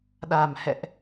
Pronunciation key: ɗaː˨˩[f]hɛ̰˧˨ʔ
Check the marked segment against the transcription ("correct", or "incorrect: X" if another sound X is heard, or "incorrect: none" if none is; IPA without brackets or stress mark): incorrect: m